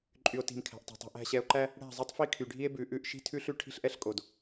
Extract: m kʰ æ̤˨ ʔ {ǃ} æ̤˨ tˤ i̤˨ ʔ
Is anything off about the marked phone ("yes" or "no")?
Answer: yes